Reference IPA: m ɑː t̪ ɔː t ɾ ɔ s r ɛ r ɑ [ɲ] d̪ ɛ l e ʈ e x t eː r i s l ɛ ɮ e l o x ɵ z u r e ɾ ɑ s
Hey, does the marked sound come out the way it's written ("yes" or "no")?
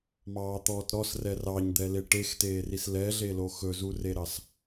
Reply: yes